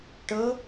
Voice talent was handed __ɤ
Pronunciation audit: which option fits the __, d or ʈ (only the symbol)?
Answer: ʈ